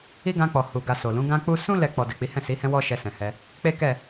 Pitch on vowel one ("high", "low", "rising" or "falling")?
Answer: high